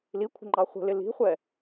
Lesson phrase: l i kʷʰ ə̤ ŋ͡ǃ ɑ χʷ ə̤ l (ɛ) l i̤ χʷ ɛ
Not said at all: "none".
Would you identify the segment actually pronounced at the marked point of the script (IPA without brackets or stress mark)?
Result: ɪ